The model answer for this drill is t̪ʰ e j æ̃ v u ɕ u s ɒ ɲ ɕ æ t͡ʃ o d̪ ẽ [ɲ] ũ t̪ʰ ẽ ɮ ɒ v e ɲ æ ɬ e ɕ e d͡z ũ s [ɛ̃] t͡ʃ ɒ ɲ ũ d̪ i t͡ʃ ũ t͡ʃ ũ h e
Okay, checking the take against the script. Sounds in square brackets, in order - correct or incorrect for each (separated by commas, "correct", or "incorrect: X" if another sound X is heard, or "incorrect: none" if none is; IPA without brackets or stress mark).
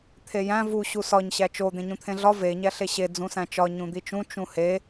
correct, incorrect: æ̃